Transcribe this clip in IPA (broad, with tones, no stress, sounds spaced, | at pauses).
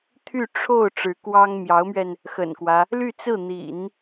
t̪ʰ y˥˧ ʈ͡ʂʰ o˥˩ ʊ̯ ʈ͡ʂ ɻ̩˧˥ k w ɑ˥ ŋ m j ɑ˧˥ ʊ̯ m ɥ ɛ˧ n | x ə̰˨˩ n k w ä˦ | l y˥˧ t͡s ɹ̩˥˩ n̪ ḭ˨˩˦ n